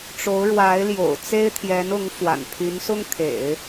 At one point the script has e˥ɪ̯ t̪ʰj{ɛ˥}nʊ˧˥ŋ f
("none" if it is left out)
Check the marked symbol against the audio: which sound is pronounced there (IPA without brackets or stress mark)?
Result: ɛ˧˥